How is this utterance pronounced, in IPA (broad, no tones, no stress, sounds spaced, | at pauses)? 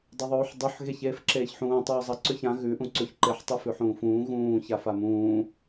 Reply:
dˤ ɐ ðˤ uː ħ dˤ ʉ ħ ɣ e ç eː f ǁ eː ç ħ ũː tˤ uː zˤ ɐ ǀ ʉ ç ã ɣ ʉ ʔ ũ ǀ ʉ ç ǃ e ħ tˤ ɨ f ʉ ħ ũː f ũː ɣ ũː ç a f a m ũː